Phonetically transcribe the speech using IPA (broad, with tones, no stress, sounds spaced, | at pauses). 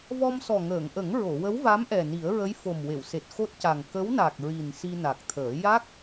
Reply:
v ɔ˧ m s ɔ˨˩ ŋ əː˨˩˨ ŋ ʔ ə˨˩˦ ŋ ɹ o˨˩˨ w ə˧˥ w v a˧˥ m ʔ ɛ˨˩ n i˨˩˦ ə̯ ɹ ə˧˥ j f o˨˩ m w e˨˩˨ w s e˨˩ t̚ x o˦˥ t̚ c a˨˩ ŋ k ə˧˥ w n a˨˩ k̚ ɹ i˨˩ n s i˧ n a˨˩ k̚ t̪ʰ əː˨˩˦ j a˦˥ k̚